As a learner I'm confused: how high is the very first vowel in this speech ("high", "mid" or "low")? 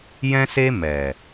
mid